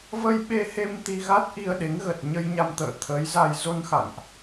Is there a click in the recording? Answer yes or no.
no